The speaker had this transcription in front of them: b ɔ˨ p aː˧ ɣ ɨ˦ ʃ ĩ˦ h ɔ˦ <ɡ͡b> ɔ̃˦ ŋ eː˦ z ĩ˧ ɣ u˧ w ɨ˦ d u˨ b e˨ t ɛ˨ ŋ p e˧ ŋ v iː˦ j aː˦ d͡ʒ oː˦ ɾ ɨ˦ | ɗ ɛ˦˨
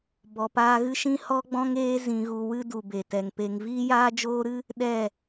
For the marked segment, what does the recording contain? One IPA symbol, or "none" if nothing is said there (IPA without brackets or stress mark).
ɡ͡b